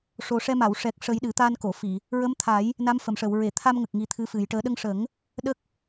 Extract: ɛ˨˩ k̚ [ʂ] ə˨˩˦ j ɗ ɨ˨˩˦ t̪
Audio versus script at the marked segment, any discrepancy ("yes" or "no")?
no